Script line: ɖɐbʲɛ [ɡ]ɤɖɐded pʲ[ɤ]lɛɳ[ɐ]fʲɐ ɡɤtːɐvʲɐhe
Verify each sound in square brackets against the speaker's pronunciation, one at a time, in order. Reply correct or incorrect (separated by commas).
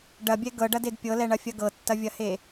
correct, correct, correct